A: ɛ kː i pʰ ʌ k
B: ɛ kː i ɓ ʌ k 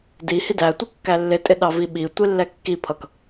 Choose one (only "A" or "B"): A